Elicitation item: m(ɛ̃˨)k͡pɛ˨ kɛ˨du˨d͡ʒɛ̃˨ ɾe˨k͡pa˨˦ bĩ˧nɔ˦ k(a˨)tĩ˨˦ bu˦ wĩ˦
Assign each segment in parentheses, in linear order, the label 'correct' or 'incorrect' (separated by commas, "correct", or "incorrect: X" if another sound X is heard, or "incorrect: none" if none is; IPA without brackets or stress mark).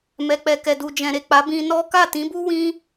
incorrect: ɛ˨, incorrect: a˦˨